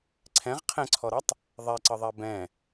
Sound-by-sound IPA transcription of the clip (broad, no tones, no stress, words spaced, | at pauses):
ǀʰɛ̃ʁ qʰɛ̃ǀʰɔɾʌtˤ | ðˤɛǀəðˤɛ bɛ̃